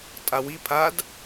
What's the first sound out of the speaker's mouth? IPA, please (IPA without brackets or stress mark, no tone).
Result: tʼ